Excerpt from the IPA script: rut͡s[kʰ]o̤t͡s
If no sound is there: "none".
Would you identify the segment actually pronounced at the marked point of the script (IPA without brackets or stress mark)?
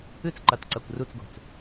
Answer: ɡ